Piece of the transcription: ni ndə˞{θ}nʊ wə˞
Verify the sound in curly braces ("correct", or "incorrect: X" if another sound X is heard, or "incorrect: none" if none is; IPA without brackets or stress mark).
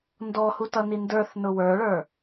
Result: correct